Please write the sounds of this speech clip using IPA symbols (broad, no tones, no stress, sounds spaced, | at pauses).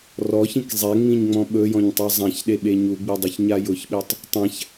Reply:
r ɔ ç ĩ k zˤ ɛ ŋ͡m ĩ ɲ ŋ͡m ɔ̃ ɓ ɵ j ɔ̃ ɲ tˤ ɛ zˤ ã ç ɗ e ɓ e ɲ u ɡ͡b i dˤ ʊ ç ɲ a j ʊ ç ɓ e tˤ | tˤ ã ç